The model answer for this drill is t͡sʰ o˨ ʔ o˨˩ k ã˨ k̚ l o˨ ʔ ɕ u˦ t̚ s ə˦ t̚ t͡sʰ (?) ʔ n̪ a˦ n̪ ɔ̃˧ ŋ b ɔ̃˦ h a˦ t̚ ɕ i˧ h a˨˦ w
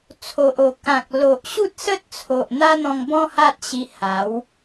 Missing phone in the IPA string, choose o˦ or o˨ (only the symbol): o˨